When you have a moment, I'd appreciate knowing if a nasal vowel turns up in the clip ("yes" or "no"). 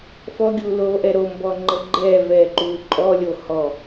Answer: no